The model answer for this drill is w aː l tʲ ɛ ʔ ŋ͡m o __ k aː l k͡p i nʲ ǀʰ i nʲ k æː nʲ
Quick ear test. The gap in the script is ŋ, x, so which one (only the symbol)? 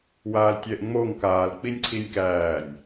ŋ